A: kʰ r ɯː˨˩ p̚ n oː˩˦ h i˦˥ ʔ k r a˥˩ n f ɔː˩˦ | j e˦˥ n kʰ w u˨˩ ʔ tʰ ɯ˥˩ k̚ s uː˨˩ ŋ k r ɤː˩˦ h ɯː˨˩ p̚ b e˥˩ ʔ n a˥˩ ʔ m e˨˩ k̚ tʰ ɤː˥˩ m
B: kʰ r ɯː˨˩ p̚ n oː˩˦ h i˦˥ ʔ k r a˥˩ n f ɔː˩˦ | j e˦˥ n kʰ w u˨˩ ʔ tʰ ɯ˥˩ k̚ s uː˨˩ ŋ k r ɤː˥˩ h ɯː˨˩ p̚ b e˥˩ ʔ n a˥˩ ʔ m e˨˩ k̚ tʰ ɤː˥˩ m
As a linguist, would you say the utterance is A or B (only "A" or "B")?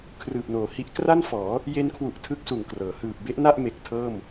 A